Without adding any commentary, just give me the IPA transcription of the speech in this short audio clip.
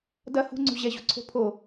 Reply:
d ɐ h ṳ ŋ͡ǀ ṳ ʑ ɛ ʑ ṳ ǀʰ o̤ pʰ o

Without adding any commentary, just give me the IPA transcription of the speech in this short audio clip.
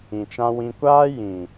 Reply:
ĩ˨ t͡ʃ ã˧ w ĩ˧ kʷ aː˦ j ĩ˨

